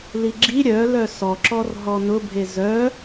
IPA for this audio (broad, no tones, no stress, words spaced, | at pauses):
liɡ͡ǁi ɾʲœlœ sɔǁɔr ɦɔnʊbʱe zœ